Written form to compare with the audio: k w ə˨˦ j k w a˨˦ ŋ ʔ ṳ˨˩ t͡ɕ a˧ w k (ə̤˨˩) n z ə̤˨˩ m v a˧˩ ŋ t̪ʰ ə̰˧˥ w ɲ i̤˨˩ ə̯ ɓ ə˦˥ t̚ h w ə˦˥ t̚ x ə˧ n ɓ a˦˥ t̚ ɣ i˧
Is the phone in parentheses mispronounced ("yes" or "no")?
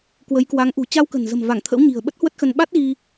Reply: no